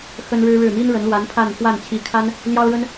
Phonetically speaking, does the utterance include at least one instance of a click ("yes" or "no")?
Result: no